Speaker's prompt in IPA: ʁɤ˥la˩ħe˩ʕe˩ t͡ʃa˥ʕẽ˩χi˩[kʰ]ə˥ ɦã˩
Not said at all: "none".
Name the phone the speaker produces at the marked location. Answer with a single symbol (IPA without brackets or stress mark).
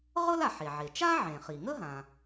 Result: ŋ